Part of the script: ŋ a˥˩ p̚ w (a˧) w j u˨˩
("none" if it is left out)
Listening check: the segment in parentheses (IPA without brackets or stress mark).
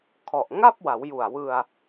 a˩˦